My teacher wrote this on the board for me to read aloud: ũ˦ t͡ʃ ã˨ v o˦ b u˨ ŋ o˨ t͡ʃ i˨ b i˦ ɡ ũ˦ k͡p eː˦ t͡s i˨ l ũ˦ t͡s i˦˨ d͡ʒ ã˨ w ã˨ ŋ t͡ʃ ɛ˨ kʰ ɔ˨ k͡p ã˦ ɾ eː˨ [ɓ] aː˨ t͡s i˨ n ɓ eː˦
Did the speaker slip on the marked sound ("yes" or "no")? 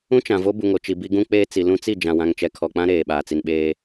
no